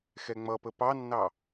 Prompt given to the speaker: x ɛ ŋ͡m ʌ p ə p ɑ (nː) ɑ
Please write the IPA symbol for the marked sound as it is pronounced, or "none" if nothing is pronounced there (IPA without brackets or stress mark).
nː